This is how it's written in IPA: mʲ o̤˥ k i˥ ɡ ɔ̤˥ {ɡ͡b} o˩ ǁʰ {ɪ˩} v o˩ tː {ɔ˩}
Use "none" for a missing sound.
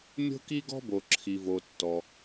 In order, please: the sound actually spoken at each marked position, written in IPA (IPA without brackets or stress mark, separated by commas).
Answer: b, i˩, ɔ˩